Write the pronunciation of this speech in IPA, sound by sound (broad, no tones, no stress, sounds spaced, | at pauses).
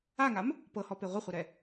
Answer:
a ŋ a m | p ɤ h ɔ p e ʁʷ ɪ χʷ ɛ ɾ ɛ